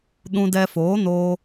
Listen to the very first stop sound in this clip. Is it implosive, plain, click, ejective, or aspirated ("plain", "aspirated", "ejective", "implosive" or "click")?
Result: implosive